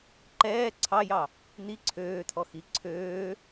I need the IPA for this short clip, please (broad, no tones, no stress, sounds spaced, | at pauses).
ǃ ɛː ǀʰ ɑ j ɑ | n̪ i ǀʰ øː t̪ʰ ɔ x i ǀʰ øː